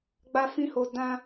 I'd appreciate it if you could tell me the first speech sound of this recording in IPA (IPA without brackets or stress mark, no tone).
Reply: ɡ͡b